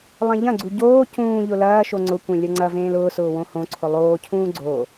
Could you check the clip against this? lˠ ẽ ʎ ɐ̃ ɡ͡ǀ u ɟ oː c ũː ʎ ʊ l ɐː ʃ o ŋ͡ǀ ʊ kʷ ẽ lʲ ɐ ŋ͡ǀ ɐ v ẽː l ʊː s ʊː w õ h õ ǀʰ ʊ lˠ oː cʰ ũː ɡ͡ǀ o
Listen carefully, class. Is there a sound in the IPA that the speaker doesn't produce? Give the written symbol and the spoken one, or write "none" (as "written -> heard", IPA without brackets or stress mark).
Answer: none